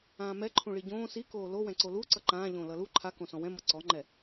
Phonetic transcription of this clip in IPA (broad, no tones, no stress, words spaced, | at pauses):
ãːmɛǃʰũ ɭiɟõː sikoː lowɛ̃ ǀolu ǀʌǃãːʎõː lʌlu ǃʰakõsɔ̃ wɛ̃mʌ ǀɔŋ͡ǃɛ